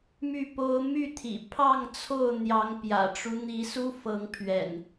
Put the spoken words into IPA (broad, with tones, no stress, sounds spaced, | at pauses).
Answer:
m y˥˨ p o˦ ʊ̯ m y˥˨ t̪ʰ ḭ˨˩ pʰ ɑ˥˨ ŋ t͡sʰ o˥˨ ʊ̯ n̪ j ɑ˨˦ ŋ p j ä̰˨˩ ʈ͡ʂ u˦ n̪ i˨˦ s u˦ f ɤ˨˦ ŋ pʰ ɥ ɛ̰˨˩ n